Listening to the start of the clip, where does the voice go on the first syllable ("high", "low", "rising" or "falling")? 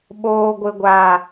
low